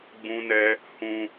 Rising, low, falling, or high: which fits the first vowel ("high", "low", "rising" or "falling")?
high